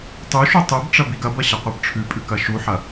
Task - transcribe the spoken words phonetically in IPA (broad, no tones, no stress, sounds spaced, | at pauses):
tˤ ʉ ʃ u tˤ ʉ b ʈ͡ʂ ɐ b i ɡ ɐ b ɐ ɕ ɐ qʷ ɐ b ʈ͡ʂʰ ʉ pʼ ʉ k ɐ ʃ u ħ ɐ